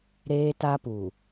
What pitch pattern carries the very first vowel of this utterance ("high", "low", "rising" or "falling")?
high